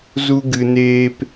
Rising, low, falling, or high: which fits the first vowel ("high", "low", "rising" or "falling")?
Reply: high